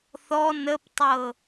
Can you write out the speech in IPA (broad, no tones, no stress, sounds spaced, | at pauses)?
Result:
θ ɔ n ə p tˤ ɤ